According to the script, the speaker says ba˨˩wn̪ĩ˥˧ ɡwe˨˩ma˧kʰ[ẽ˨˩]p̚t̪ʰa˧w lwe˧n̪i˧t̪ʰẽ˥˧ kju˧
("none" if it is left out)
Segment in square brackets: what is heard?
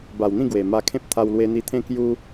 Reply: ẽ˦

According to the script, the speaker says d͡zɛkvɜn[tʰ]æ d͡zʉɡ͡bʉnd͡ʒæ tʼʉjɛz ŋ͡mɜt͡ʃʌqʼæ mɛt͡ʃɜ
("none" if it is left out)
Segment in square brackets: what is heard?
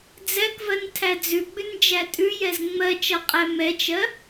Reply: tʰ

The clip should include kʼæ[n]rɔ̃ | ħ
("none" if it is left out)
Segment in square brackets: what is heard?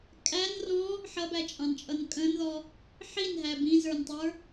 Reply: n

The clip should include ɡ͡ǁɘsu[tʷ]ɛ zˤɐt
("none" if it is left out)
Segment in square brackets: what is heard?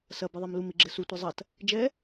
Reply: tʷ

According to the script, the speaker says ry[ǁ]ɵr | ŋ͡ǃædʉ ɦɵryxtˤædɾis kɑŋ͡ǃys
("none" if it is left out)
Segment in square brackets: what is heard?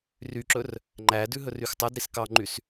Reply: ǁ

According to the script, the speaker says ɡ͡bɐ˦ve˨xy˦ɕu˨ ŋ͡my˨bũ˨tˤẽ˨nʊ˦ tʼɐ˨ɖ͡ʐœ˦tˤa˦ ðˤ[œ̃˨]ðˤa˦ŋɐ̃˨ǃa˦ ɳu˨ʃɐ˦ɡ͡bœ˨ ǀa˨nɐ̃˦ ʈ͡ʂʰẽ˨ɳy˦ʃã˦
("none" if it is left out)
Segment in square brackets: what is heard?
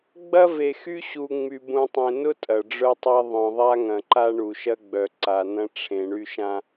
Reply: œ̃˨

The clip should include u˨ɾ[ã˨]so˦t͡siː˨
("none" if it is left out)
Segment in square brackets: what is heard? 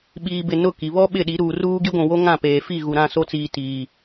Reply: ã˦˨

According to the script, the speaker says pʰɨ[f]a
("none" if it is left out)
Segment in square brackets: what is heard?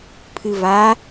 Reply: v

